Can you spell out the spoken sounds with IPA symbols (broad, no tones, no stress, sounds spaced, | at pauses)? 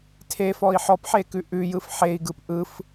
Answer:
tʰ e f ɔ i̯ ħ ɔ p ħ e k ʉ ʔ ʉ j ɯ f ħ e i̯ ɡ ɯ p ʔ ɯ f